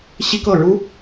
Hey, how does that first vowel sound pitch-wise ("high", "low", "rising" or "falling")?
high